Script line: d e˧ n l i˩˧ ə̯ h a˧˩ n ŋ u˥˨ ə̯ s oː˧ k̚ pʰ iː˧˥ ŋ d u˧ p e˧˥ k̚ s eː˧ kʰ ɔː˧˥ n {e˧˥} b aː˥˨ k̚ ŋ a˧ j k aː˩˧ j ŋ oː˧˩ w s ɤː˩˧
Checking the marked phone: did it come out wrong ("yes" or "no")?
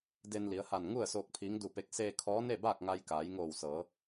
yes